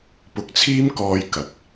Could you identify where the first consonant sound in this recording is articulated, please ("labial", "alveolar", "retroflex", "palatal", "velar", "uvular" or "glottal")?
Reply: labial